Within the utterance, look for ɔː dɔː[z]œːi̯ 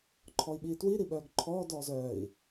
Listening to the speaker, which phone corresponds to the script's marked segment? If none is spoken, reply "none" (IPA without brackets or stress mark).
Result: z